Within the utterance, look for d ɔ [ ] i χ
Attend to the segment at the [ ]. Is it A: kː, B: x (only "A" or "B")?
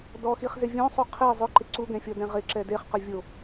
B